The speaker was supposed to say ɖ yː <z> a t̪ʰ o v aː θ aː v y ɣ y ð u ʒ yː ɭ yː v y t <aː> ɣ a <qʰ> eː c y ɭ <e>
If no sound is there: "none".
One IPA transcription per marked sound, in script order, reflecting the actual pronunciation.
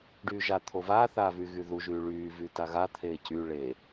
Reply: ʒ, a, t̪ʰ, e

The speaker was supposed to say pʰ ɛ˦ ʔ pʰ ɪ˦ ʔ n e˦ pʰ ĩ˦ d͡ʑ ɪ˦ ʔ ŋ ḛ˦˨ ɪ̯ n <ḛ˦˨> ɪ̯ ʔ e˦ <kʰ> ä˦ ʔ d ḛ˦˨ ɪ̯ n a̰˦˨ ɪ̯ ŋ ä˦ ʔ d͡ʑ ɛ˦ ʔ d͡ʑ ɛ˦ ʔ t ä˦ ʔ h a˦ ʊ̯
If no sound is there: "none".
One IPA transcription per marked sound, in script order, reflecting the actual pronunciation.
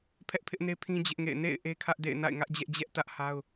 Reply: ḛ˦˨, kʰ

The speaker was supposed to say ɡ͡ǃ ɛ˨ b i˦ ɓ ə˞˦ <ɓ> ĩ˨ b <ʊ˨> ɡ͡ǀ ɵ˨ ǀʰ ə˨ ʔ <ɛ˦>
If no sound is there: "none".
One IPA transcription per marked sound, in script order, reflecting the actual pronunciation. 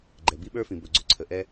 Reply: f, ɵ˨, ɛ˦

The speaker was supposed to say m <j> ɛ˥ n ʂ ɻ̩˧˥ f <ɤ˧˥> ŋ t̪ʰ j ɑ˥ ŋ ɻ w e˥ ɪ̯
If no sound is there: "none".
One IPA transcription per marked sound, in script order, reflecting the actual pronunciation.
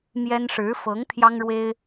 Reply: j, ɤ˧˥

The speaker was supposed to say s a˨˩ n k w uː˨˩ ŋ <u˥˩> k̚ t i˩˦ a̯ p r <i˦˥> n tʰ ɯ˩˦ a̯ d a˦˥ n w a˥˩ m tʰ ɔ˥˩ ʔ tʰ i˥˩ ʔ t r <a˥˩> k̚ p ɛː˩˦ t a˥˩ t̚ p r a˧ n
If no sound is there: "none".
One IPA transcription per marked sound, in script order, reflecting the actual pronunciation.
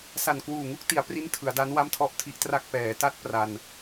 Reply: u˥˩, i˦˥, a˥˩

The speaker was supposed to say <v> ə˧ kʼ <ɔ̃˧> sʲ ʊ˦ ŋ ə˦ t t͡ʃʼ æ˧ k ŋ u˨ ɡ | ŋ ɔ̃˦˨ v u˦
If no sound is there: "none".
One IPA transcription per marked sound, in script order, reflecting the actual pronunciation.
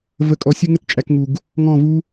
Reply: v, ɔ˧

